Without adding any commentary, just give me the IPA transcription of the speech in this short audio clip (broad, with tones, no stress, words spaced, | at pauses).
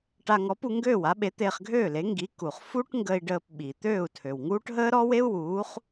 ʈa˧ŋɔ˩˥pu˧ ŋɡøː˥˩wa˩˥ɓe˩˥ t̪eː˧χɡʱøː˥˩le˩˥ ŋɡi˩˥ ku˩χ fu˥ʈŋɡə˧i̯ɖəː˧p ɓi˩ t̪øː˥˩u̯tʰø˩wŋuː˥ʈ ɦəː˥ɾɔ˥we˥u̯ wuː˩˥χ